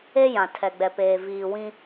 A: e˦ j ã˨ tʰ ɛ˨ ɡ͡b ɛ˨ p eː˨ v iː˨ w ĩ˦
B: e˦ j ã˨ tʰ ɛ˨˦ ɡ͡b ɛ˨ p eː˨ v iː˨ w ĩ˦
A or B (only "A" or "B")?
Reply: A